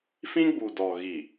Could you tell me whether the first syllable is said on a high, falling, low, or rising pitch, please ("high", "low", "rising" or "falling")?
high